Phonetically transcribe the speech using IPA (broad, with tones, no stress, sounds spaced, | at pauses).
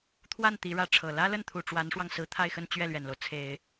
t̪ʰ w a˥˩ n t̪ i˧˥ ɻ ä˥˩ ʈ͡ʂʰ ɤ˨˩ l ä˥ l ə˥˩ n t̪ʰ u˨˩ ʈ͡ʂ w a˧˥ n ʂ w ɑ˧ ŋ s ɹ̩˧˥ t̪ʰ a˥˧ ɪ̯ x ə˥˧ n t͡ɕ ɥ ɛ˥˩ l ɥ ɛ˨˩ n l o˦ ʊ̯ t͡sʰ e˨˩˦ ɪ̯